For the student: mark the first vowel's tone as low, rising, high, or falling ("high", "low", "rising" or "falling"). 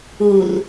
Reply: low